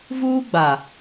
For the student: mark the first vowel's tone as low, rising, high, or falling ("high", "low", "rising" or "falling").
high